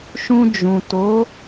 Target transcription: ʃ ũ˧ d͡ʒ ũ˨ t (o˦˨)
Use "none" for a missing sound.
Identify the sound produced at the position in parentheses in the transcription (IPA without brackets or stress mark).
o˨˦